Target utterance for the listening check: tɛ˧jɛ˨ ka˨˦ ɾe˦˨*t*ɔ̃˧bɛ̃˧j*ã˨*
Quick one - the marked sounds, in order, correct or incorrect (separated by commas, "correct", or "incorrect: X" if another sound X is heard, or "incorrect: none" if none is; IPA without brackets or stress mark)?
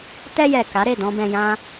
incorrect: d, incorrect: ã˦